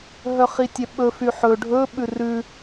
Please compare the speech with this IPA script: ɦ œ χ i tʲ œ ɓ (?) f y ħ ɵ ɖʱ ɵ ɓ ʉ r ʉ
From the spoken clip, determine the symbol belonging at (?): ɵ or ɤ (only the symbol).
ɵ